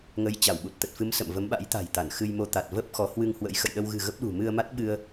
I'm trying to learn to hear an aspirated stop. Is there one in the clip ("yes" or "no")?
no